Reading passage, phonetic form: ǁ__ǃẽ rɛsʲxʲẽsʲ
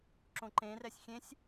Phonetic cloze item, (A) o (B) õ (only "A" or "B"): B